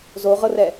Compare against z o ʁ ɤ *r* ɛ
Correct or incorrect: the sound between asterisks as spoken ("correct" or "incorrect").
correct